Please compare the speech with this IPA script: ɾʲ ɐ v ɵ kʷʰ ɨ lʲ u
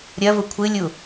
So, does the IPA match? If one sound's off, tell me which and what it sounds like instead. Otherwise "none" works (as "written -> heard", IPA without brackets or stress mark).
ɵ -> ʊ